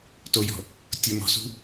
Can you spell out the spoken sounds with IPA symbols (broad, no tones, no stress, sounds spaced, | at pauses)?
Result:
t o j ɔ̤ | tʲ o m ɔ̤ s ṳ